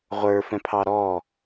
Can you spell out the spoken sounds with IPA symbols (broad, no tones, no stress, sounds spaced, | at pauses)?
ʁʷ ə˞ f ɛ̃ pʰ ɑ ɾ ɔ